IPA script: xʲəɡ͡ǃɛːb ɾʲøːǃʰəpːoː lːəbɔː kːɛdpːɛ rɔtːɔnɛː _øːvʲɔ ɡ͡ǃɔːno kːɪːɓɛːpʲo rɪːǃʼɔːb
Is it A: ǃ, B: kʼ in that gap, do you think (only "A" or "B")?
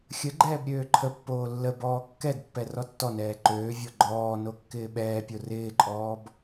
A